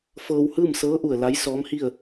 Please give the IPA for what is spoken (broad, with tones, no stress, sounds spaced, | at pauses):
f ɤː˧ w h ɯː˥˨ m s ɤː˧˥ ʔ u˧˩ ə̯ l a˧˥ j s ɔː˧˥ m h i˥˨ ə̯